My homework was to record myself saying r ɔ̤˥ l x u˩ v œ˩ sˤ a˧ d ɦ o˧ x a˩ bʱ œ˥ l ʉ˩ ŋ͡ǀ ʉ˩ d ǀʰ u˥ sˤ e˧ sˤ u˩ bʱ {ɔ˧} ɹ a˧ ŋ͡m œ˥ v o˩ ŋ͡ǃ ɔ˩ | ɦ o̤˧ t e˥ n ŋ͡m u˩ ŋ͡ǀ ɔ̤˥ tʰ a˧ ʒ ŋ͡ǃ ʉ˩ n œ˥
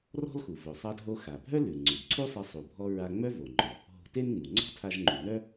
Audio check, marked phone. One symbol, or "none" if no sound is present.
ɔ˧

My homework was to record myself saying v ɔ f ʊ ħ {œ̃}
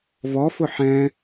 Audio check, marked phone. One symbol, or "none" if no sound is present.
ɛ̃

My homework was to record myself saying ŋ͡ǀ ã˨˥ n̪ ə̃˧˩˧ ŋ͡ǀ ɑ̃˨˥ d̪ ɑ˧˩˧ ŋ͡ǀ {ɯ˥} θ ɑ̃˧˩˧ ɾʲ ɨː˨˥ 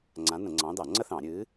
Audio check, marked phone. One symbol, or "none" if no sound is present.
ə˥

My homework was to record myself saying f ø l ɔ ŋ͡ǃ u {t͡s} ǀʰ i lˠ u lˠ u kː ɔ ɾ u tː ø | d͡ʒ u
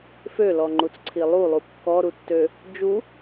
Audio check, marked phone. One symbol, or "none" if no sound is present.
t͡s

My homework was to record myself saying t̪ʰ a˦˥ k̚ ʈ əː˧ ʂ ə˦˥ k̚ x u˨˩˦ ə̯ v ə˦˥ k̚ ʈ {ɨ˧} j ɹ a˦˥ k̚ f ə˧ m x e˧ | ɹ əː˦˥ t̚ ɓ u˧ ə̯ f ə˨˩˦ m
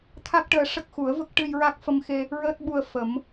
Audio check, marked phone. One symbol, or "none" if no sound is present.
ɨ˧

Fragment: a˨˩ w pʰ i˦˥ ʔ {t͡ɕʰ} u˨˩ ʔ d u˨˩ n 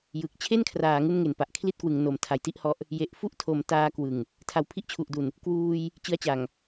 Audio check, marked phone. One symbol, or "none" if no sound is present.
t͡ɕʰ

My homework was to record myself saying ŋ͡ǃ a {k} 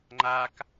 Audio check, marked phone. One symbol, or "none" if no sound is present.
k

